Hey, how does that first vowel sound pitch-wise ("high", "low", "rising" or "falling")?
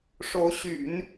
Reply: rising